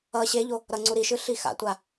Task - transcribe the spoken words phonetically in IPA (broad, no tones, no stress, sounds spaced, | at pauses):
ʌ ɕ e ʎ o | ɾ ʌ ŋ͡ǀ u ɾ i ʃ ɯ ɬ i x a̰ tʷ a